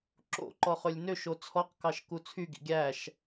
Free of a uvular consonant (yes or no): no